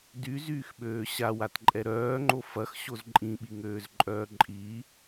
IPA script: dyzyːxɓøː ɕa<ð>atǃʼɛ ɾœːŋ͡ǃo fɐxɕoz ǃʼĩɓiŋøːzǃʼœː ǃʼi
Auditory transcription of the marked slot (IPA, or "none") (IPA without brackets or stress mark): w